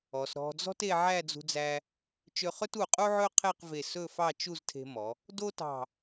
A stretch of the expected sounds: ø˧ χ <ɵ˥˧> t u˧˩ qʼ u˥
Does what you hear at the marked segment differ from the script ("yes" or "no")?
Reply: yes